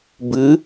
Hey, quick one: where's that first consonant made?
lips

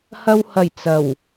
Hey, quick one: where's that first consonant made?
throat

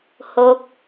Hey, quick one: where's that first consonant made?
throat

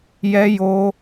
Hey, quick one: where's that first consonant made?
palate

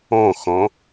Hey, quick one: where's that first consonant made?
velum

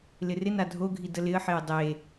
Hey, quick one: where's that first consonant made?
tongue tip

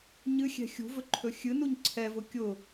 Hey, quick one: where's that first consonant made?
palate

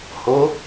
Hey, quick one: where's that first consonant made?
throat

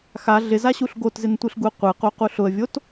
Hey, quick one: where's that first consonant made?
velum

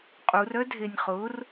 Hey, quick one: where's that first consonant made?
uvula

